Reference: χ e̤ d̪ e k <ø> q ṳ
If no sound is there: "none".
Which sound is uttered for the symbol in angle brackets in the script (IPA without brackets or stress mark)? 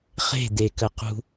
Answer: ə